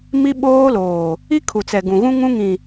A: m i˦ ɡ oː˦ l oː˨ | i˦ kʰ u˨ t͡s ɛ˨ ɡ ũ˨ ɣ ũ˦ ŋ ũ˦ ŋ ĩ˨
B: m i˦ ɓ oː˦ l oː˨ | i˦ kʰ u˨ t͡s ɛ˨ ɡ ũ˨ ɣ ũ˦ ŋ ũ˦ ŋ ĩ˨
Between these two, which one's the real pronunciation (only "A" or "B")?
B